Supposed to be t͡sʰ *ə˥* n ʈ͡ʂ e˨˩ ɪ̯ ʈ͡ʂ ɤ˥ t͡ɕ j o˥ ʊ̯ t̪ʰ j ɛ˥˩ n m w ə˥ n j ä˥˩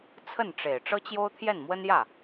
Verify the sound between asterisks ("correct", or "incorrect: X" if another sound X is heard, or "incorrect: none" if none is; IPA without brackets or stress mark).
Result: incorrect: ə˥˩